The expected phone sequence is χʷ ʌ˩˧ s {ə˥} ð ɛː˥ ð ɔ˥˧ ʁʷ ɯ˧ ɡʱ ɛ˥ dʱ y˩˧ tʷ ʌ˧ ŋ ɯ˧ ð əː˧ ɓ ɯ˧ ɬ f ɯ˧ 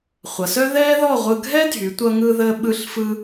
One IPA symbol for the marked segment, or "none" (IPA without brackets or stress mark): œ˥